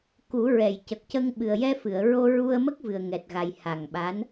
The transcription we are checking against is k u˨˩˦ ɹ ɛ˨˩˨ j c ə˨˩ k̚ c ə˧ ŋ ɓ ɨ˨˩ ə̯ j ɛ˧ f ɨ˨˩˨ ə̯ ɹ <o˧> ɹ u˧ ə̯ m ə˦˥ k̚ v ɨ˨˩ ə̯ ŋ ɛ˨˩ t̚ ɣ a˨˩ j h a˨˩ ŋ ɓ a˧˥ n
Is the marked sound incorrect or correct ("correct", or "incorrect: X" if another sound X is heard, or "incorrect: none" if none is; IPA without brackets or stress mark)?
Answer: correct